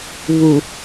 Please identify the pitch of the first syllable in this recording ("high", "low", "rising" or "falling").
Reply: low